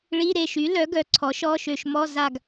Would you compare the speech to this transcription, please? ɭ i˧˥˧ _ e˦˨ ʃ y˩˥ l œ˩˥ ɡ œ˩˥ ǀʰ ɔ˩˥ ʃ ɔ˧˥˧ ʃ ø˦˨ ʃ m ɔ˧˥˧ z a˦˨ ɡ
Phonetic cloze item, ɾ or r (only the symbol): ɾ